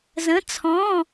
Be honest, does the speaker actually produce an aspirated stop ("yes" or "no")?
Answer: yes